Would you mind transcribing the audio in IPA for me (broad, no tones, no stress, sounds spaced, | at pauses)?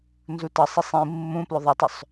n z u t ɤ sˤ i sˤ ĩ mː ũ p l ʏ ðˤ ə tˤ ʏ sˤ